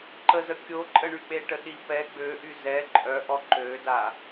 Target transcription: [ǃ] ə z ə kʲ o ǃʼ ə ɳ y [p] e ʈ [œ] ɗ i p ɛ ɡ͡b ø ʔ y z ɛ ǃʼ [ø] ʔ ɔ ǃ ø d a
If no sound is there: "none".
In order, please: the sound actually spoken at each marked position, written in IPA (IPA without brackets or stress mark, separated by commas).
ǃ, k͡p, ə, œ